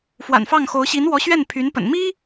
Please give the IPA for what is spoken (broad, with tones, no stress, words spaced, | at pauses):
fwa̰˨˩nfɑ˥˩ŋxo˧˥ʊ̯ ɕi˧˥nwɔ˧˥ ɕɥɛ˥˩npʰy˧˥npə̰˨˩n mi˥